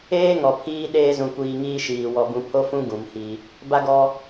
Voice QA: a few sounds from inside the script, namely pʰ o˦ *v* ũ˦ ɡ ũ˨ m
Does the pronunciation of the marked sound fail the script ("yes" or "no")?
yes